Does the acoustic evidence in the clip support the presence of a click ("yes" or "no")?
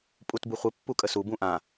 no